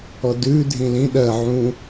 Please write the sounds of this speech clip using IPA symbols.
ɔ d ʉ dʱ ĩ l ĩ ɗ ɜ ʕ ũ

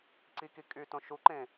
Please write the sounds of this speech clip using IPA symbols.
ǀ i k i kʼ y t õ ʃ u ǃ ẽ

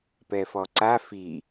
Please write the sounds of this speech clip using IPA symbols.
p ɛ f ɔ ǀ a f i

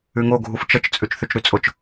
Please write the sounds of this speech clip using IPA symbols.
ʉ ŋ o ɡʱ u f t͡ʃ ə t͡ʃ t͡sʼ ʉ t͡ʃ θ ʉ t͡ʃ ɾ ʉ t͡sʼ ʊ t͡ʃ

